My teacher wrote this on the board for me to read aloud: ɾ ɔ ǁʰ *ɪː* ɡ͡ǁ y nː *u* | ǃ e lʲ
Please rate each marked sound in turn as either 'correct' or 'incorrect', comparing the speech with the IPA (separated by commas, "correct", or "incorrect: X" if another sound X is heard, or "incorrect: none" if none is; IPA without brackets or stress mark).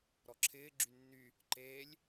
correct, incorrect: y